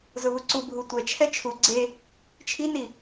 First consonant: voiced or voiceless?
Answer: voiced